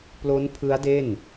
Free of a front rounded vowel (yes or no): yes